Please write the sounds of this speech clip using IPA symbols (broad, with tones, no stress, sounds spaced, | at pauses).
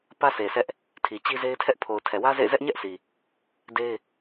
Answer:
p ä˦ s e˨ s ɛ˦ ʔ | tʰ i˨ t͡ɕ i˦ z e˦ ɪ̯ tʰ ɛ˦ ʔ pʰ o˨ ʊ̯ tʰ ɛ˨ w ä˦ z ḛ˦˨ ɪ̯ z ɛ˦ ʔ ɲ ɛ˦ ʔ s i˨ | d e˦ ɪ̯